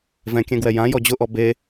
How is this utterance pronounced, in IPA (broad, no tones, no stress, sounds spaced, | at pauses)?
v ɛ̃ kʲ ɛ̃ ɡ w ɛ j ã j ɔ d͡ʑ ʊ ʔ ɔ b e